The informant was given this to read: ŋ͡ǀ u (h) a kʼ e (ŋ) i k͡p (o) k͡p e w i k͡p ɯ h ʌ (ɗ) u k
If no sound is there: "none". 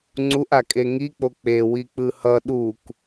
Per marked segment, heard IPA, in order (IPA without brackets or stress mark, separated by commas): ʔ, ŋ, o, ɗ